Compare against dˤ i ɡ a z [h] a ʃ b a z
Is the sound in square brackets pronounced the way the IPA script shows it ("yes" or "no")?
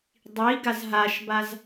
no